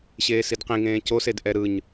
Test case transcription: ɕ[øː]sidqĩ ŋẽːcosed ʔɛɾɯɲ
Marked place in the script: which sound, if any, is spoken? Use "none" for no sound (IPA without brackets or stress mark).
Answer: eː